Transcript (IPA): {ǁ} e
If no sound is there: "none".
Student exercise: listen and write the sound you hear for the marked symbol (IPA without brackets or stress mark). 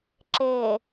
ǁ